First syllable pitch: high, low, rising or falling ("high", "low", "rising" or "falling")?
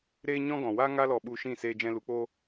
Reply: high